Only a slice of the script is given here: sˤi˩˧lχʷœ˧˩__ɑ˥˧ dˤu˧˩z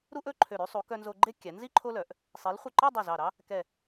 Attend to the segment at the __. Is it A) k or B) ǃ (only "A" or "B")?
B